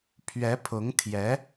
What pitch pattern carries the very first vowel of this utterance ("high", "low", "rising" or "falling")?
rising